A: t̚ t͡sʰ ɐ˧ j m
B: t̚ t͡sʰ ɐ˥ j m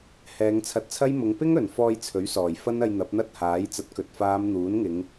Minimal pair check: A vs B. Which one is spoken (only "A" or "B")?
B